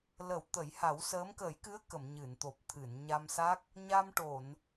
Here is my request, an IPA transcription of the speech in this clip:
lə˨˩˦w t̪ə˨˩˦jha˨˩˦wsəː˧˥m kəː˨˩˦jkɨ˧˥ə̯ kə˨˩˨m ɲɨ˨˩˨nt̪o˨˩p̚ t̪ʰɨ˨˩˨n ɲa˧msa˦˥k̚ | ɲa˧mʈo˨˩˨n

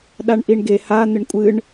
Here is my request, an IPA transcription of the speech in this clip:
ɗaɳʔiɳɡe ha n̪ɪɳkʷʼɨɳ

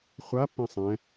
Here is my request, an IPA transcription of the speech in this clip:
χʷapːɛ̃ sˤɛ̃

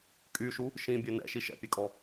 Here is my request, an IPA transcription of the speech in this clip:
kʼyʃu | ʃĩbʲø nɛ̰ ʃiʃɛ̰pʲekʼɔ

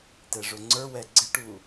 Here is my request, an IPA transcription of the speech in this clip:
tɛʐʊŋ͡ǀə˞wɛ ɡ͡ǀɪʈu

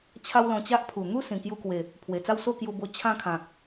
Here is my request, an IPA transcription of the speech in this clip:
t͡ɕʰa˦wlɔ̃˧t͡ɕa˦ʔ pʰu˨˩n̪u˦ sĩ˨˩kju˧kwe˨˩ | pʰwe˨˩t͡sa˥˧wso˥˧ kju˧bo˧ t͡ɕʰã˥˧kʰã˨k̚

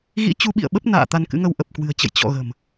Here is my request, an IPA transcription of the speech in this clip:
ɣḭ˧˥ t͡ɕu˨˦ɓḭ˧˨ə̯ɓə˦˥p̚ na̰ː˧˨ t̪a˧nkɨ̰˧˥ŋə˧w ʔə˨˩p̚kwɨ̤˨˩ə̯t͡ɕə̰˧˨j t͡ɕɔ̰˧˨ ɣə̤˨˩m

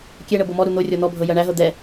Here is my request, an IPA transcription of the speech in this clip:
kʲɛɳɤ bɤmɔɾu n̪o rʲɔn̪ɔbʱɤ jɜɳæɦɤ d̪ɛ

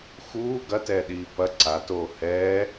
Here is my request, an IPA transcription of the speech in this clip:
xuː ɡɐtɛːɗiː pɐ ǀatoː hɛː

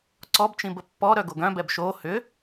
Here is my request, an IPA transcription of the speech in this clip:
ǀɔbt͡ʃĩb əpːɔɾœ ɡoɡœ̃bɛb ʃo hʏ

